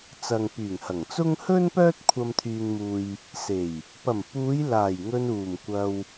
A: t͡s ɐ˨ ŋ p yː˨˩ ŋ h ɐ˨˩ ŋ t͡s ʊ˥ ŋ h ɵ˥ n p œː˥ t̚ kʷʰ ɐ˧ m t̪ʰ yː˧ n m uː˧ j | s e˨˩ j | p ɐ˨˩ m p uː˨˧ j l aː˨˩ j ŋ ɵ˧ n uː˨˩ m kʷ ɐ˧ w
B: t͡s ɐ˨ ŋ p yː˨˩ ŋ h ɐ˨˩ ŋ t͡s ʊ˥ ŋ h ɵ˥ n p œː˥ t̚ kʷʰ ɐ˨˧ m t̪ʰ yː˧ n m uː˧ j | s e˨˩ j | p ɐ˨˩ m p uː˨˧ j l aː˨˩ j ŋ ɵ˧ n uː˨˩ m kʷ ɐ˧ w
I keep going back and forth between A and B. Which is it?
A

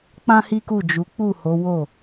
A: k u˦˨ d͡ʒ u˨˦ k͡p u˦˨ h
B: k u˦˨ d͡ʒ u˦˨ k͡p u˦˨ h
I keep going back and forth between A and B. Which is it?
A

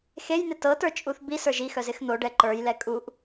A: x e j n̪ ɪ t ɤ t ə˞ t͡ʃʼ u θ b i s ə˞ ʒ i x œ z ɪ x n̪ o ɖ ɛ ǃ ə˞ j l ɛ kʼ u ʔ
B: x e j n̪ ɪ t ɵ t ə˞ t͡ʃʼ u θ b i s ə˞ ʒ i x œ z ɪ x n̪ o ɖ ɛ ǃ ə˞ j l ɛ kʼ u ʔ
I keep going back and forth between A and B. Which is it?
A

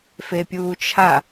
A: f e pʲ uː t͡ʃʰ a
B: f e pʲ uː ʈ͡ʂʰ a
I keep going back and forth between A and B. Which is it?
A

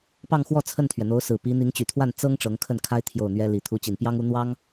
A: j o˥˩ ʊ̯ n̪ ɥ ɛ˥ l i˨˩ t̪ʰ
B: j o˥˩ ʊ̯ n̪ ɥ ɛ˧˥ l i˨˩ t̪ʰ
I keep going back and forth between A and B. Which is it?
A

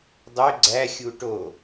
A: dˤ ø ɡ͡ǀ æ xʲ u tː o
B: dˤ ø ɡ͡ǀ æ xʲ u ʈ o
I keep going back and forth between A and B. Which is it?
B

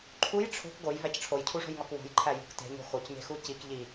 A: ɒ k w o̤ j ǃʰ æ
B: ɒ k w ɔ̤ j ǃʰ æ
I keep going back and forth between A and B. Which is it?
A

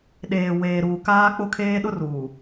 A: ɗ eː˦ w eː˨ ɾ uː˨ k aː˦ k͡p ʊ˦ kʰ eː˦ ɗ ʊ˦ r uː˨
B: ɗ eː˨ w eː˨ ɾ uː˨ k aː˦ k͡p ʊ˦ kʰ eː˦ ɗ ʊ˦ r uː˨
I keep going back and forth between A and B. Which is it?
B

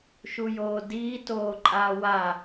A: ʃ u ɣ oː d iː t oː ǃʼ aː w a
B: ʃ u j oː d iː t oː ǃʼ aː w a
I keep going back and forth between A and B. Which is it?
B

